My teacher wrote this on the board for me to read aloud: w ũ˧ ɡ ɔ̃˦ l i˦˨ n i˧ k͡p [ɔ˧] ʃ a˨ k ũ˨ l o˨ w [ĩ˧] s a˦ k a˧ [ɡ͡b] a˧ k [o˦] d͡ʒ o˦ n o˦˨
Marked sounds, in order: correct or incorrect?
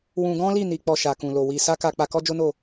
correct, incorrect, incorrect, incorrect

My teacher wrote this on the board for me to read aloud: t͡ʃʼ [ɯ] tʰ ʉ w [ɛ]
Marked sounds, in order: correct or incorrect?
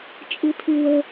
correct, incorrect

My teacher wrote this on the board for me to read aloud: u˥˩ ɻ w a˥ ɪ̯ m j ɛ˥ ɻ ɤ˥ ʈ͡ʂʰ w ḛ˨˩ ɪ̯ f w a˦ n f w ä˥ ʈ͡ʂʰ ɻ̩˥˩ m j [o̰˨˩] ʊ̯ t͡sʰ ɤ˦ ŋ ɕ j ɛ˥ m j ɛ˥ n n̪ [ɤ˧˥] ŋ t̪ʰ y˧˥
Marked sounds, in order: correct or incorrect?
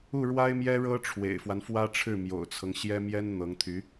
correct, correct

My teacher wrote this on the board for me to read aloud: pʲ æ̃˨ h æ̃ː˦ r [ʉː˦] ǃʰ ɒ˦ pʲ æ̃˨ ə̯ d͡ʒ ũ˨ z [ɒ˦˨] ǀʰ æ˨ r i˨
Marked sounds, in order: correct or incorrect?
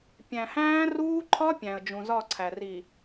incorrect, correct

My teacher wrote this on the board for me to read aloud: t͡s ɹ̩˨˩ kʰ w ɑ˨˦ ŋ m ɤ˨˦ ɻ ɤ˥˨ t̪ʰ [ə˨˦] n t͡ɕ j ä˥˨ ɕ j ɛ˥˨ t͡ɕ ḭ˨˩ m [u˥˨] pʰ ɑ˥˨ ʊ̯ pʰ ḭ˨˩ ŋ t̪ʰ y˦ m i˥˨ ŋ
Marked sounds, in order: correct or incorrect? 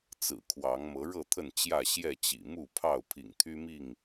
incorrect, correct

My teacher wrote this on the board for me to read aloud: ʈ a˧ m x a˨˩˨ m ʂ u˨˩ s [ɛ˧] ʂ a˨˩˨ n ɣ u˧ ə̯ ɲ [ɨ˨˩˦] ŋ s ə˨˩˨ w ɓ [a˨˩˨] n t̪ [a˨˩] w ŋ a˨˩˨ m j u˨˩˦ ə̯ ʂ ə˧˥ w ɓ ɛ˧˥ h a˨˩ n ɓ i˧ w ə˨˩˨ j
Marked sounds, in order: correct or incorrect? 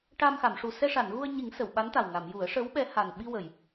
correct, incorrect, incorrect, correct

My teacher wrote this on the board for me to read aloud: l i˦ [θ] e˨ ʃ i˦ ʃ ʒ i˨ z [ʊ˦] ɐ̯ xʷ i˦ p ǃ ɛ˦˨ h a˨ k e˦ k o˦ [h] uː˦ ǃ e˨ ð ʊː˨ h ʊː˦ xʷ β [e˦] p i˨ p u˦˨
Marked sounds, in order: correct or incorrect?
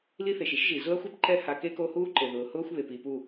correct, correct, correct, incorrect

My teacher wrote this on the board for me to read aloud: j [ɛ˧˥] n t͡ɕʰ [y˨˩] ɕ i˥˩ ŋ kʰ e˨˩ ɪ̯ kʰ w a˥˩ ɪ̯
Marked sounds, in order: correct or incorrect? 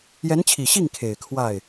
correct, incorrect

